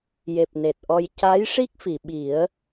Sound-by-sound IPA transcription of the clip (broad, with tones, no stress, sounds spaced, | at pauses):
j e˨˩ p̚ n e˨˩ t̚ ʔ ɔ˧ j c a˧˥ j ʂ i˦˥ k̚ f i˨˩˨ ɓ i˨˩˦ ə̯